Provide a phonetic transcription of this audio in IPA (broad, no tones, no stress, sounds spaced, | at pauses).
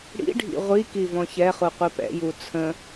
ɽ ḭ ɖʱ ḭ ʁʷ i k i v ɔ̃ ç ɛ χ u qʷ i p ɛ̰ j u t͡sʰ ə̃